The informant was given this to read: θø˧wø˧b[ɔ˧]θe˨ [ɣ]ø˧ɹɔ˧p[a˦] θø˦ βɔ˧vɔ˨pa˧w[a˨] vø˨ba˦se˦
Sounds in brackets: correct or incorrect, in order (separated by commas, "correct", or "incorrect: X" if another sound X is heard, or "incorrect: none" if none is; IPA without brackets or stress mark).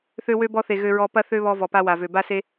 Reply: correct, correct, incorrect: ɐ˦, correct